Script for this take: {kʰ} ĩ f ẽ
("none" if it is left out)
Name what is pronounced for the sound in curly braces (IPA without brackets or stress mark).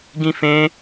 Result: ɡ